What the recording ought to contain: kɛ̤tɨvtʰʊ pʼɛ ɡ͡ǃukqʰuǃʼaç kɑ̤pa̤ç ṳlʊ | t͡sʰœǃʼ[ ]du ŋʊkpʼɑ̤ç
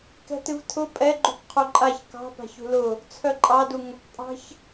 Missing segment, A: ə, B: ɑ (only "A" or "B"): B